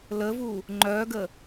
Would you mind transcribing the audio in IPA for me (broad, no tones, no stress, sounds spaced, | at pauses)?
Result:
l ə v u | ŋ͡ǃ œ ɡ ə